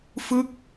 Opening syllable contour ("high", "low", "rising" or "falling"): falling